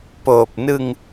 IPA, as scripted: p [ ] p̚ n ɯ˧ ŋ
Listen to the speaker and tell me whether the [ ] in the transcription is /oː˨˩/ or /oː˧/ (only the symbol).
oː˨˩